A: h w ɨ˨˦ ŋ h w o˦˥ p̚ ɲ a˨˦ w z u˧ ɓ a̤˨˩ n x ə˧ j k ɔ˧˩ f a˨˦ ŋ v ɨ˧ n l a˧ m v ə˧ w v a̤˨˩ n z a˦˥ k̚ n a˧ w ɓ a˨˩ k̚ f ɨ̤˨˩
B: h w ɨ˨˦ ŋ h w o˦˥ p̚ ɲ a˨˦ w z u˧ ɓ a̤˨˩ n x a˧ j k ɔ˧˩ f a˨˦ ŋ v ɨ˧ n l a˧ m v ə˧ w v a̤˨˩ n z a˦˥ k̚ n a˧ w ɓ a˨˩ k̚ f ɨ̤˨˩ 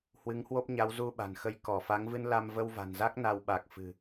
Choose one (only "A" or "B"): A